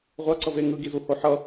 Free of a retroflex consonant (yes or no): yes